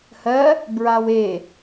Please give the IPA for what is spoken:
h ɜ | b ɹ a w e

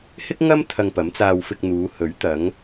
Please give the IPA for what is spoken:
h ɪ˥ k̚ ŋ ɐ˥ m t̪ʰ ɐ˧ ŋ p ɐ˨˥ m t͡s aː˧ w f ɪ˧ k̚ n̪ uː˨˧ h ɵ˨˥ ɥ t̪ ɐ˨˧ ŋ

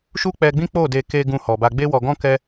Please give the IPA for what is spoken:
ʃ u˦ k͡p ɛ˧ ɡ͡b ĩ˦ k͡p o˦˨ d e˧ k e˧ ɡ ũ˧ h ɔ˨ b a˧ ɡ͡b e˦ w ɔ˧ ɡ ɔ̃˦ k ɛ˦

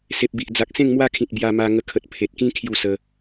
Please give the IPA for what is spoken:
s e˨ p̚ b i˨ ʔ d͡z a˨ k̚ s ẽ˥˧ ŋ m w a˦ kʰ ĩ˨ t̚ b j a˧ m a˧ ŋ ə˧ kʰ ə˨ t̚ pʰ e˨ t̚ k ĩ˦ kʰ j u˥˧ s ə˧

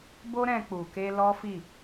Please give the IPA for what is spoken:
b o˦ ɾ ɛ̃˧ k͡p u˨ k e˧ l ɔ˦ f i˦˨

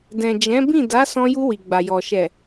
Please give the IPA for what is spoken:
d ɛ̃˨ d͡ʒ ɛ̃˨˦ b ĩ˦˨ d a˨˦ s ɔ̃˧ j u˧ w i˨ ɡ͡b a˨ j ɔ˨ ʃ ɛ˨

